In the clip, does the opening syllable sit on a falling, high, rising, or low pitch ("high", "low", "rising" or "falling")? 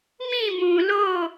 falling